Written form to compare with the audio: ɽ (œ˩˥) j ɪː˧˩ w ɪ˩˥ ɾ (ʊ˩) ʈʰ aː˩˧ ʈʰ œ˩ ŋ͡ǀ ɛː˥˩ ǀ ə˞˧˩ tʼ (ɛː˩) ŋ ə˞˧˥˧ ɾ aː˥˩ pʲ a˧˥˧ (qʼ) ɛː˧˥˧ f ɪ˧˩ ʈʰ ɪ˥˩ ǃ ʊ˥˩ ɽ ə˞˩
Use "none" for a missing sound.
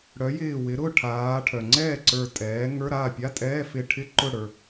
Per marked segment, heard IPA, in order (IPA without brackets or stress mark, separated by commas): œ˩˥, ʊ˥˩, ɛː˩˥, tʼ